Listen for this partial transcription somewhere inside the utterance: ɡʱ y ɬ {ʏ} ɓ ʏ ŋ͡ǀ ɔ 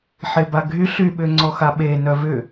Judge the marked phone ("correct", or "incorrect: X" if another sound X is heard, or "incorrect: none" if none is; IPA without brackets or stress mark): incorrect: y